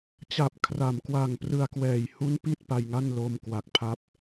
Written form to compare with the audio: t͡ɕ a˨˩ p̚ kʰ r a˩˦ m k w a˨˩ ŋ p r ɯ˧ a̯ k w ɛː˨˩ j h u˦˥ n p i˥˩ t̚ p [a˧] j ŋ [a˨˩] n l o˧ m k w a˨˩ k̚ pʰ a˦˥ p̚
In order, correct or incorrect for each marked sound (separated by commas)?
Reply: correct, incorrect